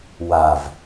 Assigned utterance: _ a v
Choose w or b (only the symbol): w